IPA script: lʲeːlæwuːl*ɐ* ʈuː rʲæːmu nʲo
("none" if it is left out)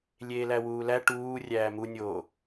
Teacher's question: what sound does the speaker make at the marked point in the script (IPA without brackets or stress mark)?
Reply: æ